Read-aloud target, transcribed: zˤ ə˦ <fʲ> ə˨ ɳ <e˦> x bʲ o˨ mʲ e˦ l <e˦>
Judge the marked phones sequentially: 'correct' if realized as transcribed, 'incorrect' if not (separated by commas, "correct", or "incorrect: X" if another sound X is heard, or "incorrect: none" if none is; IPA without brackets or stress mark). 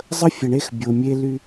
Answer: correct, correct, incorrect: y˦